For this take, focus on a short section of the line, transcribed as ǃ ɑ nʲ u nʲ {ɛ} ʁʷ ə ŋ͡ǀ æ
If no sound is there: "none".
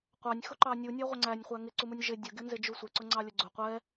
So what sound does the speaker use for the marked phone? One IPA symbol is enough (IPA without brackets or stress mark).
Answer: æ